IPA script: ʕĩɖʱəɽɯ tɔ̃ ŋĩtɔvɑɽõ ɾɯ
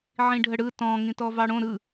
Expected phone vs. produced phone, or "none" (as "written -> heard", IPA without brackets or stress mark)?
none